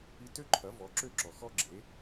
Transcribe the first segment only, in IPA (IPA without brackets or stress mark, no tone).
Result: i